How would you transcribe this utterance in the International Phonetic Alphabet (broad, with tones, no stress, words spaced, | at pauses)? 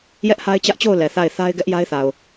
jɛ˦ʔha˦ɪ̯t͡ɕä˦ʔt͡ɕo˦˨ʊ̯ lɛ˨θa˦˨ɪ̯ θa˦ɪ̯ɡɛ˦ʔja˦ɪ̯θa˨ʊ̯